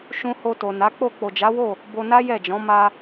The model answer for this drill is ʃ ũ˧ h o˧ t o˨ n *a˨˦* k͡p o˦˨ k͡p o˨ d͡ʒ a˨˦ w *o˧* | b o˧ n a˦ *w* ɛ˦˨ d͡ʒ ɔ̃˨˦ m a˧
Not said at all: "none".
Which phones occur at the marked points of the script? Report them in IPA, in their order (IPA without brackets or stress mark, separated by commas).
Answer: a˨˦, o˦˨, j